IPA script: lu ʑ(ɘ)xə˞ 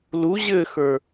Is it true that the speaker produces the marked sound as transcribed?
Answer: yes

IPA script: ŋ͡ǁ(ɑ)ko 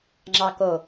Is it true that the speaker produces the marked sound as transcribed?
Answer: yes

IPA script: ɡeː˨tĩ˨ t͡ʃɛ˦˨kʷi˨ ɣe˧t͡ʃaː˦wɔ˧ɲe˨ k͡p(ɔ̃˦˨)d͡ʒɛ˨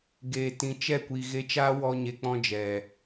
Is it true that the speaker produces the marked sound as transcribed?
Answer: no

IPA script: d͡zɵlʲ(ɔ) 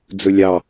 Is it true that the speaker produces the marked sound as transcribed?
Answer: no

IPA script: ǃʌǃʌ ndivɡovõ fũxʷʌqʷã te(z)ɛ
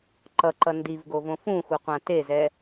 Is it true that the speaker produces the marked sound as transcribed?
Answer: yes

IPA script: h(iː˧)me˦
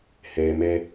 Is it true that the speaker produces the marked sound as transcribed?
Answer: no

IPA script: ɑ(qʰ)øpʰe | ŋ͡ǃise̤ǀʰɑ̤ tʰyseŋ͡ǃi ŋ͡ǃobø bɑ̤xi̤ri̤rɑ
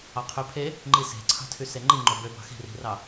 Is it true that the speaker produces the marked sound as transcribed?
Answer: yes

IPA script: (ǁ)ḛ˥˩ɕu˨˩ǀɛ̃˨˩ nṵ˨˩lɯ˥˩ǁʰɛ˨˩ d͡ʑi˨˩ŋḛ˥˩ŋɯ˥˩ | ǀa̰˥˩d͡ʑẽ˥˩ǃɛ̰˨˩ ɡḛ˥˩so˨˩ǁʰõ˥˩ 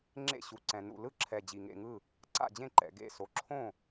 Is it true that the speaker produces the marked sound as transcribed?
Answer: no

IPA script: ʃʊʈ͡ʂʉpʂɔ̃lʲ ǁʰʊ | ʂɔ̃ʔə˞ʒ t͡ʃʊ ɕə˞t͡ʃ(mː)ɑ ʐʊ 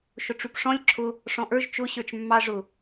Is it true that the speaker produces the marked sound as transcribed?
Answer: yes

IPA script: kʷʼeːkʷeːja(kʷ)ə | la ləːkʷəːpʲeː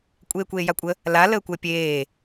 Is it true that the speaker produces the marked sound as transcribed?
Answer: no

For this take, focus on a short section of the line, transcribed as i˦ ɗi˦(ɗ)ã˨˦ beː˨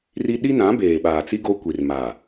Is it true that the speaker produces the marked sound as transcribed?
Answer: no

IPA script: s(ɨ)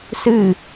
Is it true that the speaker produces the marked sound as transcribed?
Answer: yes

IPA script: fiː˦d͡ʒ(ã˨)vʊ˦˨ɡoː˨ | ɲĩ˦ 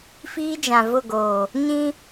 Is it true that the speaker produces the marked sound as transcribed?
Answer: yes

